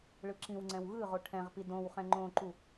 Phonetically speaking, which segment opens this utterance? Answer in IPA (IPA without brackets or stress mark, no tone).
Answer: ɭ